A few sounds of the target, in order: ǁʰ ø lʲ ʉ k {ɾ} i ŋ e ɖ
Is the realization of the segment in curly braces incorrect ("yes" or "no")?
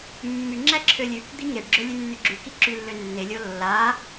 yes